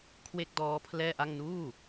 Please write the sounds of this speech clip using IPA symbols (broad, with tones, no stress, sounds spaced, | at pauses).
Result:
kʰ w e˥˩ k̚ d ɔː˦˥ pʰ l ɛː˥˩ ʔ a˥˩ ŋ n uː˥˩